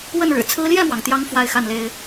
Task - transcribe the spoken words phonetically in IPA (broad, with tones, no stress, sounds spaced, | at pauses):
w ə˥˩ n ɻ ɻ̩˨˩ t͡sʰ ɹ̩˥ l j ɛ˥˩ m w ɑ˩ ŋ t̪ j ɑ˧˥ ŋ f w a˥˧ ɪ̯ x a˥˩ n l e˥ ɪ̯